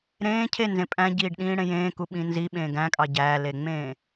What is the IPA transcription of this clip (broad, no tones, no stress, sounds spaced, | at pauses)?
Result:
ɾ ẽː cʰ e n z ẽ pʼ æ̃ ɟ iː ɖ ɗ ĩː ɽ ẽ j ẽː k u ɓ ĩ n z i ɓ ẽː ɡ æ̃ kʼ ɑ ɟ æ l e ŋ͡m ẽː